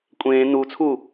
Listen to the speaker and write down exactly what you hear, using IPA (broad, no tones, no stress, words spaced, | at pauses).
kʷʼẽː nut͡sʰu